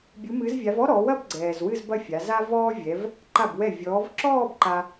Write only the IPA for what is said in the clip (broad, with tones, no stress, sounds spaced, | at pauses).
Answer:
bʲ u˨˦ m ɨ˨˦ z vʲ a˨˦ v ɔ˥ ɾ ɔ˨˦ w ɐ˥˧ b ɡ͡ǀ ɛː˨ z w ɨ˥˧ z b ɐ˥˧ fʲ a˨˦ z a˥ v ɔː˥ vʲ ɛ˨˦ v | ǃ a˥˩ b w ɛ˥˩ vʲ ɔː˨˦ v ǁ ɔː˥˧ b ǃ a˥